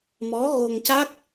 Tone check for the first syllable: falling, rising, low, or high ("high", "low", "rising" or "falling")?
rising